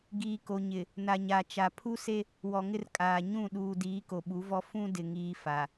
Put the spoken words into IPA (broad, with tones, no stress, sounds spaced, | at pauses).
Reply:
ɡ iː˨ k o˨ ɲ ɪ˨ | n a˨ ɲ a˨ t͡ʃ a˨ pʰ u˦ s e˦ | w ɔ˨ ŋ ɪ˦ r kʼ aː˨ ɲ ũ˦˨ ɗ uː˨ d iː˨˦ k o˨ ɓ u˨˦ v ɔ˦ f ũ˦ d ɪ˨ ŋ iː˦ f a˨